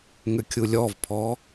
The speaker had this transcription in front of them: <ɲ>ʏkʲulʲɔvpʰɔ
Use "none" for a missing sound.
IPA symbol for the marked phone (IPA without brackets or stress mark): ŋ